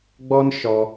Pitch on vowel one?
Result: high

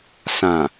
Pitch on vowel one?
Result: low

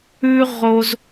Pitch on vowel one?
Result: high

